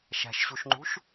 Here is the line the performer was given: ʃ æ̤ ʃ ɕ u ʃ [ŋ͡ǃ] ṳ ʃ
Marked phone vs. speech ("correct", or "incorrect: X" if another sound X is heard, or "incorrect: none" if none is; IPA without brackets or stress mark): correct